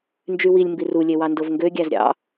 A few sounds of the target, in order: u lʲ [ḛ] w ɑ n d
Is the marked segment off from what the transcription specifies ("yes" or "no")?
yes